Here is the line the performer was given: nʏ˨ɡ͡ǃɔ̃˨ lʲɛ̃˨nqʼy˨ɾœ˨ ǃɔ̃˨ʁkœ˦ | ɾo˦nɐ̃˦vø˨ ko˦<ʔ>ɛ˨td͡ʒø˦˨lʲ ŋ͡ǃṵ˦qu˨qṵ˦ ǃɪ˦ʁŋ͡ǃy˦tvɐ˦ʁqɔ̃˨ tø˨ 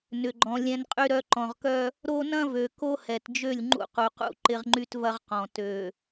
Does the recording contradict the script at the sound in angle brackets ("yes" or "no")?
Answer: yes